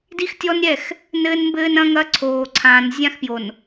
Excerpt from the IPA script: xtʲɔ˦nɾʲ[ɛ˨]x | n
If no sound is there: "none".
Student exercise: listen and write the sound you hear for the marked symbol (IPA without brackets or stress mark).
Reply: ɛ˦˨